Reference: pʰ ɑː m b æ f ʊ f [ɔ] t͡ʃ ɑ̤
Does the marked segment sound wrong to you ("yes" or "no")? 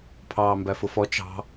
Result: no